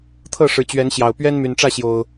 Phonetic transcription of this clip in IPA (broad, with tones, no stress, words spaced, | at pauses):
t̪ʰɤ˥˨ʂɻ̩˨˩t͡ɕɥɛ˨˦nɕjɑ˨˩ʊ̯ pɥɛ˦nmy˨˩nʈ͡ʂä˥˨ɕjo˨˩ʊ̯